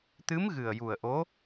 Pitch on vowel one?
rising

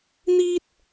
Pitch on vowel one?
high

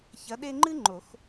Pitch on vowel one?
rising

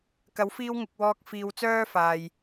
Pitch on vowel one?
rising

